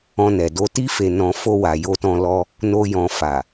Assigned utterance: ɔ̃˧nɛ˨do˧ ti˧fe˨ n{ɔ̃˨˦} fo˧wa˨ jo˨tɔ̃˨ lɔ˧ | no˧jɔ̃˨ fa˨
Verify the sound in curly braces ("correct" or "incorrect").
incorrect